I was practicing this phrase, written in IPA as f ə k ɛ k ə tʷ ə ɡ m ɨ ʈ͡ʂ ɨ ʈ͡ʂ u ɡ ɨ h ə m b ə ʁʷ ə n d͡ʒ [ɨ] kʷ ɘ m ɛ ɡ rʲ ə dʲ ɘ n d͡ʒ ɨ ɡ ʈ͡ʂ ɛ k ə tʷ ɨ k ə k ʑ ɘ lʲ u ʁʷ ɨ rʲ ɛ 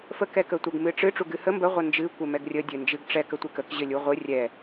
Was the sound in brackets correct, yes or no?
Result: yes